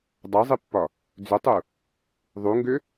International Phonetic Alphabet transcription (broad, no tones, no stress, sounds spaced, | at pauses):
dˤ a zˤ i pː ɒ | d͡z ʏ tˤ u | ðˤ u ŋ ɡ ʏ